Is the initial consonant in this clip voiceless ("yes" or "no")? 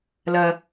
no